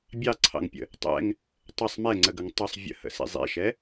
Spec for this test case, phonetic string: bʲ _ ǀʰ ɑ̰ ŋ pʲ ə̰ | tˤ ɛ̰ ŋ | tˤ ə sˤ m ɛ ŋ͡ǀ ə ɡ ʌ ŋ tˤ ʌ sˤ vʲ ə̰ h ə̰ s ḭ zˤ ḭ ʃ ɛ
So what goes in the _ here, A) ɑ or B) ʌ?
A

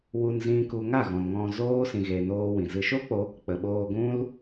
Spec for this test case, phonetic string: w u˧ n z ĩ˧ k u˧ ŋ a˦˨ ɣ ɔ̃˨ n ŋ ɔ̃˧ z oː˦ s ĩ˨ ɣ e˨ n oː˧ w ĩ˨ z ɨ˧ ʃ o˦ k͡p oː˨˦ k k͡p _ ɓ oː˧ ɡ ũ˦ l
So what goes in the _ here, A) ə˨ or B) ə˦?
A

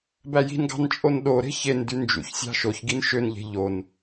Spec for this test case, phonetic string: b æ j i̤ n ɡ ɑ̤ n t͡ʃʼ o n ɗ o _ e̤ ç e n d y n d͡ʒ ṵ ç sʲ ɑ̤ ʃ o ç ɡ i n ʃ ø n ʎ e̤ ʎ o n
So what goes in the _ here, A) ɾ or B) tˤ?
A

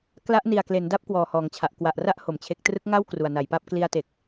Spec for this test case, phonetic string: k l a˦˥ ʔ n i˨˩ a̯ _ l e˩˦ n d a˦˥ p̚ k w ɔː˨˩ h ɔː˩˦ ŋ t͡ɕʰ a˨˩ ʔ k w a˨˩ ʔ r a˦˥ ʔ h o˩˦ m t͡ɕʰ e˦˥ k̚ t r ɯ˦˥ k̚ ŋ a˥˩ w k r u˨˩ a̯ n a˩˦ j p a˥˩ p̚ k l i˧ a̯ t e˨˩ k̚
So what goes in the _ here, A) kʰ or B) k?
B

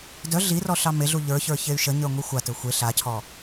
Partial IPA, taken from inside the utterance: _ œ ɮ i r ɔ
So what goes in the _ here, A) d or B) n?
A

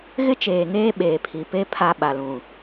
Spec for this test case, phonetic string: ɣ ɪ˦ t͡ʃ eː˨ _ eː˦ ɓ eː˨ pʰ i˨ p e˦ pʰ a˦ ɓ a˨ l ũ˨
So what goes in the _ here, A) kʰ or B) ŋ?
B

